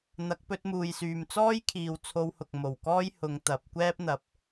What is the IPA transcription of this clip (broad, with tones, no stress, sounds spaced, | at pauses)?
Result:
n̪ ɐ˨˥ k̚ p ɵ˧ t̚ m uː˨ j s yː˨ m t͡s ɔː˥ j kʰ iː˨ w t͡sʰ o˧ w h ʊ˨ k̚ m o˨˩ w k ɔː˥ j h ʊ˨˧ ŋ t̪ ɐ˨˥ p̚ kʷ ɛː˥ p̚ n̪ ɐ˨ p̚